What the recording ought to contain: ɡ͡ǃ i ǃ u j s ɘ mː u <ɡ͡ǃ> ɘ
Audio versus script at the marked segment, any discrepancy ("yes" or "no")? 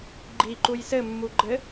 no